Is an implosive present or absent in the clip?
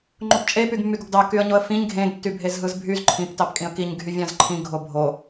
absent